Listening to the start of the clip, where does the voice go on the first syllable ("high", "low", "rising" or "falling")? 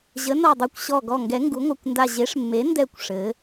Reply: rising